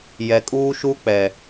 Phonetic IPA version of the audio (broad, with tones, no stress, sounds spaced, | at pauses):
j ɛ˨ kʼ uː˦ ʃ u˦ k͡p ɛ˨